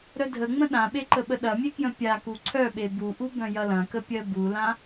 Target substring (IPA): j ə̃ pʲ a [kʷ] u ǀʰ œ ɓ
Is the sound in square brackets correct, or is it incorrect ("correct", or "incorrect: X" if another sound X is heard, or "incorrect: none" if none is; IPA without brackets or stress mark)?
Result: incorrect: k